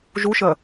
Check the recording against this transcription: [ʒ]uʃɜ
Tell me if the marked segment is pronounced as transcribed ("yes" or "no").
yes